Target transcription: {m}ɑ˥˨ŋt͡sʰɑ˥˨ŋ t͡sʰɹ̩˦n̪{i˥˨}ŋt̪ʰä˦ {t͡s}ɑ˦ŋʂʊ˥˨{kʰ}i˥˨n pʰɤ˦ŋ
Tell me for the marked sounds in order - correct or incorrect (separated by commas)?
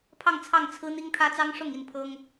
incorrect, incorrect, correct, incorrect